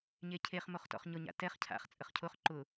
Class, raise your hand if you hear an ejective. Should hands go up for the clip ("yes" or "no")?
yes